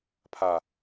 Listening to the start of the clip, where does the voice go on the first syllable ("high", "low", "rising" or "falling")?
low